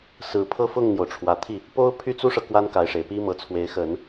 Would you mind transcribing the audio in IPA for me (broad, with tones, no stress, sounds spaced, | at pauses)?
s ɹ̩˨˩ pʰ ɤ˥˧ f ʊ˥˩ ŋ n̪ j o˩ ʊ̯ ʈ͡ʂʰ w ä˨˩ t̪ʰ i˥˩ | p o˥ ʊ̯ pʰ y˥ t͡s u˥ ʂ ɤ˨ k w a˥ n k a˧˥ ɪ̯ ʂ e˨˩ ɪ̯ p i˥ m ɤ˧˥ t͡sʰ w e˧˥ ɪ̯ x ə˨˩˦ n